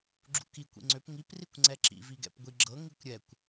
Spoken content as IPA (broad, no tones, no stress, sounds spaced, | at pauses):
ɡ͡ǁ ṵ k i kʷ ḭ ŋ͡ǀ ø p ŋ i p r i kʷ ŋ͡ǀ ɛ ǁ ḭ v i ɡ ɛ̰ p ɡʷ i ɡ͡ǁ ɤ ŋ i kʷ ɾʲ ɛ kʷ